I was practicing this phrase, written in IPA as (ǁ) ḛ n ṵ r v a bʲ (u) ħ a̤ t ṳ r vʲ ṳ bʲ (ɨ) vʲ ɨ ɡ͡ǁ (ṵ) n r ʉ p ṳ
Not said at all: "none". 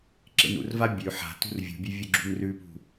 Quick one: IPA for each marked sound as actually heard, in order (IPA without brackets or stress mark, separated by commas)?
ǁ, ʉ, ʉ, ṳ